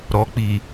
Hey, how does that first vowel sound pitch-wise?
low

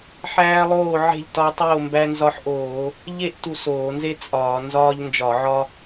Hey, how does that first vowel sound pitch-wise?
high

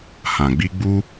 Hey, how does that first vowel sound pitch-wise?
low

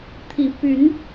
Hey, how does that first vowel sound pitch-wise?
rising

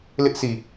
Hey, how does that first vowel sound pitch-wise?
high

